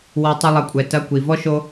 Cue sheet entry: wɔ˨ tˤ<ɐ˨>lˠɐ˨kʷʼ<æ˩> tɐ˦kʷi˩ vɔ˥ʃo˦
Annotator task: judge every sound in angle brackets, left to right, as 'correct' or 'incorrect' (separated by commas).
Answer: incorrect, incorrect